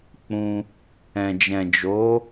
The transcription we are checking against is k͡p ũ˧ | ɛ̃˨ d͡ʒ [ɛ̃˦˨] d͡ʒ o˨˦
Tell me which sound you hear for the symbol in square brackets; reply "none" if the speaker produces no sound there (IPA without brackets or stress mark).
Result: ɛ̃˨